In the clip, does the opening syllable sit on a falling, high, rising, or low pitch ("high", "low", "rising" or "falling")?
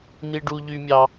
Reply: high